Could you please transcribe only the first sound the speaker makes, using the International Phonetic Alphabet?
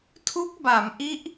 tʰ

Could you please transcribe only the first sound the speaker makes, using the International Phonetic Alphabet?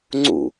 ŋ͡ǀ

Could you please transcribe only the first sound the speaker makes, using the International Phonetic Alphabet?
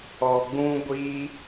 ɔ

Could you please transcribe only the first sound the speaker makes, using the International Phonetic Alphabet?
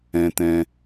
ɛ̃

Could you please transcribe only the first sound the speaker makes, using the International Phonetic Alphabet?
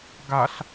ɡ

